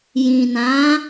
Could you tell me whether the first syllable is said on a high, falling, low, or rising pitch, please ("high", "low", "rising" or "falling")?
low